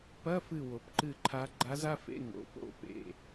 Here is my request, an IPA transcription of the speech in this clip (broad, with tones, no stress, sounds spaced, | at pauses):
p ɐ˧˥˧ f ɨ˧˩ w o˩ p ǃ ɨ˧˩ ǃʰ a˧˥ ɡ͡ǃ a˧˥ z a˧˥˧ f ḛ˧˥˧ ŋ o̰˩˧˩ p o̰˥˨ p ḛ˩˧˩